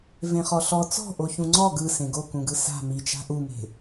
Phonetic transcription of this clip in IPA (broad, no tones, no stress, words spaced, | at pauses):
vẽχɔɬɔ t͡sɔ̤ʔo çũŋ͡ǀɔ ɡɯ sẽɡokũɡɯ sa̤ mit͡ʃa̤ ʔume̤